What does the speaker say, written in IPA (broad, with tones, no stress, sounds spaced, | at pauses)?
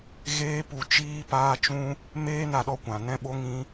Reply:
ɣ eː˦ p u˧ t͡ʃ iː˦ p aː˦ t͡ʃ ũ˦ | m eː˦ n a˧ ɗ ɔ˧ kʷ ã˨ n ɛ̃˦ ɓ o˦ ŋ ĩ˦